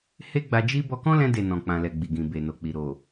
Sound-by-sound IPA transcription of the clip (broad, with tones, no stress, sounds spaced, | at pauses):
h e˦ ɡ͡b a˧ d͡ʒ i˦ b ɔ˧ k ɔ̃˦ l ɛ̃˧ d e˨ n ɔ̃˨ k͡p ã˨ l ɛ˨ ɡ͡b i˨ ɡ ĩ˨ b e˨ n o˨ k͡p i˨ ɾ o˨